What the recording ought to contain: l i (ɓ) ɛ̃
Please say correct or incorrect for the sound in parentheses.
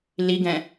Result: incorrect